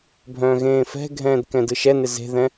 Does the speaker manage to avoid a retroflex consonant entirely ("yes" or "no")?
yes